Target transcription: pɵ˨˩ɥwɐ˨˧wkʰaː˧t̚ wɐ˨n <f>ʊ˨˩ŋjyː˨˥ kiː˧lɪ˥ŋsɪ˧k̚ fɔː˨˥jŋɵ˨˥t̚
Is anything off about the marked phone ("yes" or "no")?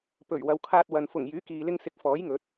no